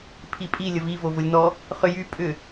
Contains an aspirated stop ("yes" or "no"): yes